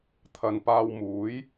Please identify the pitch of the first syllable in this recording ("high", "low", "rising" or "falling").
low